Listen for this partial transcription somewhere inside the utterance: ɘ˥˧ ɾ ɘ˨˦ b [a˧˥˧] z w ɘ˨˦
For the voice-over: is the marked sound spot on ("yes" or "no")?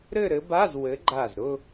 yes